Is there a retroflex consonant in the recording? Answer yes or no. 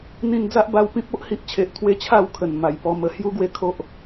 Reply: no